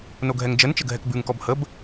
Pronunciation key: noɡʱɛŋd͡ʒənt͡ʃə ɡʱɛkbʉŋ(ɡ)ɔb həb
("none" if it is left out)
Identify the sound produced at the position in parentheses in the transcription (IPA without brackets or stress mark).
k